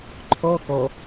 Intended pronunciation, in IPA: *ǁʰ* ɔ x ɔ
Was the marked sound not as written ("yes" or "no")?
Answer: yes